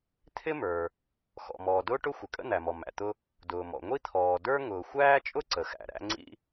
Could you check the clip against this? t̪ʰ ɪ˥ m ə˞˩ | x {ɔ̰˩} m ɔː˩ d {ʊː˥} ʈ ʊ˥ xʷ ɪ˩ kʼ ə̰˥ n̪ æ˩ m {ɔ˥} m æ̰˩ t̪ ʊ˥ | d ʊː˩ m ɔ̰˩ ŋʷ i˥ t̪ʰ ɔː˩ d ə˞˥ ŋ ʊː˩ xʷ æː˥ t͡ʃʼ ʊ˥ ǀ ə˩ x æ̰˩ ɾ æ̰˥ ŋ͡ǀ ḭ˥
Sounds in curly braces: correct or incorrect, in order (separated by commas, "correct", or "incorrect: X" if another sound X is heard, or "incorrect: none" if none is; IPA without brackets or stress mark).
correct, correct, incorrect: ɔ˩